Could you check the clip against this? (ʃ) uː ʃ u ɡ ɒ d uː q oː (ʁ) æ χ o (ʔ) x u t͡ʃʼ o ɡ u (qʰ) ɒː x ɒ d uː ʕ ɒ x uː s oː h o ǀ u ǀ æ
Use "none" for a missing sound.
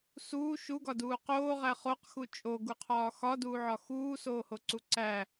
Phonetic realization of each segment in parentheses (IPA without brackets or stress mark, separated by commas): s, ʁ, q, qʰ